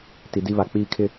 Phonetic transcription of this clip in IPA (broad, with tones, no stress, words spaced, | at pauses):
ti˨di˦βa˨ k͡piː˦kʰɪ˦